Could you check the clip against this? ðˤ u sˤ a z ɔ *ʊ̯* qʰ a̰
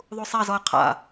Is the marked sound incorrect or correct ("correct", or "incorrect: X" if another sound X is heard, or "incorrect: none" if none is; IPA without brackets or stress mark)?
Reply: incorrect: ə̯